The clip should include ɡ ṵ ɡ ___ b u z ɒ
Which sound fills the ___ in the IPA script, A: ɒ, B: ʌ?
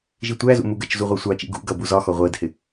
B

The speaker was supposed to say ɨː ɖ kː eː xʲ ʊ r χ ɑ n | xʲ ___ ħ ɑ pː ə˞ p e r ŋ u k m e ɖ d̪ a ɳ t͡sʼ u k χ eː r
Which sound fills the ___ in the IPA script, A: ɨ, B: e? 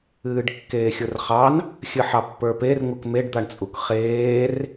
A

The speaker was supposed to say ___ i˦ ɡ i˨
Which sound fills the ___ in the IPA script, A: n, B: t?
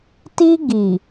B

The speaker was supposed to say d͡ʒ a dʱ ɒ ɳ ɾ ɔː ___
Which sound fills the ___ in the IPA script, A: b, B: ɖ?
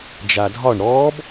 A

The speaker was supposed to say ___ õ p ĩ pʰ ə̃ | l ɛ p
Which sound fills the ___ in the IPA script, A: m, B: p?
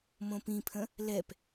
A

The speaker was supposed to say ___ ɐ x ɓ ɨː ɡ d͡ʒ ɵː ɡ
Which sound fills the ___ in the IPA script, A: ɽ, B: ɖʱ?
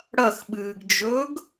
A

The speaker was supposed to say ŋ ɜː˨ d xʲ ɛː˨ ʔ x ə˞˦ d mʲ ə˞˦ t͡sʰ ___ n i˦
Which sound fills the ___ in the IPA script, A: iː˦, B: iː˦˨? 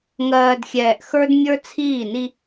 B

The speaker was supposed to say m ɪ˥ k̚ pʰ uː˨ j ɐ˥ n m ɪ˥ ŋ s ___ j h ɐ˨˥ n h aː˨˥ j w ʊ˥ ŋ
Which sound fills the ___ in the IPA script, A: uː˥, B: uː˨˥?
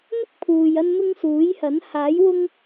B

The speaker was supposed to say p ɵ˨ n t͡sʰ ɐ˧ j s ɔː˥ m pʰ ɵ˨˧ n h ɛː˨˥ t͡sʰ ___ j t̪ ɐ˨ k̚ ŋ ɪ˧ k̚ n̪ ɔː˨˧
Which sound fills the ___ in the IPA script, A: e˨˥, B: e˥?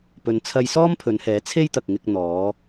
B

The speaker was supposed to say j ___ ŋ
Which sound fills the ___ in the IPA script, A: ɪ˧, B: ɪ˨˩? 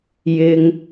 A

